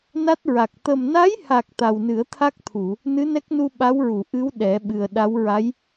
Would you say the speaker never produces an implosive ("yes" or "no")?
no